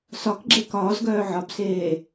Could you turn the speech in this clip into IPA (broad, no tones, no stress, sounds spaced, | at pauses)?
s ɒ k ɡ͡ǁ e k ɒː z ɡ œː ʕ ɒ b s eː